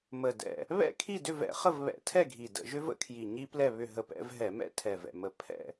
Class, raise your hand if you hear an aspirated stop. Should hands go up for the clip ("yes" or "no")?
yes